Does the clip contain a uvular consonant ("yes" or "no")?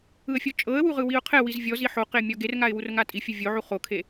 yes